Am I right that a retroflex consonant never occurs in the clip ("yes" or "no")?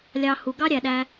yes